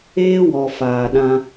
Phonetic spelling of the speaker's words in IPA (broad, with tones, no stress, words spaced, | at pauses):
eː˦wɔ˨ faː˨ɗã˧